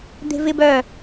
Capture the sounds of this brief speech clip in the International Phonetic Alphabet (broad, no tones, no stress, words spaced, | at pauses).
d̪e̤vɪb œ